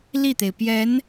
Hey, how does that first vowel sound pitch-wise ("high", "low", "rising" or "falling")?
falling